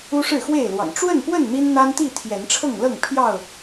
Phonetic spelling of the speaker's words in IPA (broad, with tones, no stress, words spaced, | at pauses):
u˦ʂɻ̩˥˨xwe˥˨ɪ̯lwɑ̰˨˩ŋ ʈ͡ʂwə˥˨npwə˥˨n n̪i˦nn̪a˦nt̪i˥˨ t̪ʰjɛ˨˦nʈ͡ʂʰɤ˥˨ŋlɤ˥˨ŋ pʰjɑ˥˨ʊ̯